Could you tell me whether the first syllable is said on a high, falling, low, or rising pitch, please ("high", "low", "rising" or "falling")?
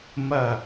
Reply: falling